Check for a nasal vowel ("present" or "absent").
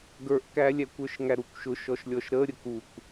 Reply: absent